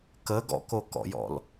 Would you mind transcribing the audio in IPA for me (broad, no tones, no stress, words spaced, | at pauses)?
kə ɡɔ̰kokɔ̰jɔ̰l